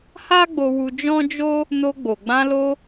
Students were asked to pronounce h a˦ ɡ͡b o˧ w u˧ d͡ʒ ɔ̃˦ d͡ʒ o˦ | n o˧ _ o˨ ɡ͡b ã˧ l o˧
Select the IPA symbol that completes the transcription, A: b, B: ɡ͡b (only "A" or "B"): B